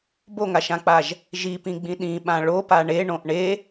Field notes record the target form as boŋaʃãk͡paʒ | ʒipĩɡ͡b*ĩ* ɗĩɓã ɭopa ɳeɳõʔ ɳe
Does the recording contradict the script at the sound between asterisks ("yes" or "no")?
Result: no